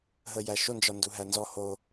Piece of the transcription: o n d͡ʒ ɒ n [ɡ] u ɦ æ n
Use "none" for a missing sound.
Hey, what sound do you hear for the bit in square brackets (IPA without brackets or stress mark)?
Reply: d